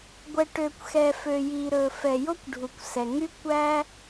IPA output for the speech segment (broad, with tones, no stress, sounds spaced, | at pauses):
ɡʷ ɛ˩ ʈ ø˩ kʷ x ɛ˩ f ø˩ j i˩ ɾ ɵ˩ f ɛ˩ j o˥ kʷ ɖʱ u˩ kʷ s ɛ˩ ŋ y˥ kʷ æ˥